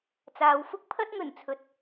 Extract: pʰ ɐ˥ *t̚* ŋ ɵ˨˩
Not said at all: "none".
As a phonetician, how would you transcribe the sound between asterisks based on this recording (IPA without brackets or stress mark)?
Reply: t̚